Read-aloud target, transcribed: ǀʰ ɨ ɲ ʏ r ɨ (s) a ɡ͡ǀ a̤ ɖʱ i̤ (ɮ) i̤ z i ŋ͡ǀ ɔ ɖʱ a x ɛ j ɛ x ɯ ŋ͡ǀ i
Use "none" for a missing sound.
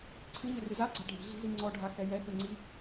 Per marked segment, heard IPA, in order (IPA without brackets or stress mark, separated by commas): z, ɮ